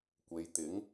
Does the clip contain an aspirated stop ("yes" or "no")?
no